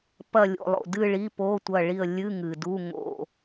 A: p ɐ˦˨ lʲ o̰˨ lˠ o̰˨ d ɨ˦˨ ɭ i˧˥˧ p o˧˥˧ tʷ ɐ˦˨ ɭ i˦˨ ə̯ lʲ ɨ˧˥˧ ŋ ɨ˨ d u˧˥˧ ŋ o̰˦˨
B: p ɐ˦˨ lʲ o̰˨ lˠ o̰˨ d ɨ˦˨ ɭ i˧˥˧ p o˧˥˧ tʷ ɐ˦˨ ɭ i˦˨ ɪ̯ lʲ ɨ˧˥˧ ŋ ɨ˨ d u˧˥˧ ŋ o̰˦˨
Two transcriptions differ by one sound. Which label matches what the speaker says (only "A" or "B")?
A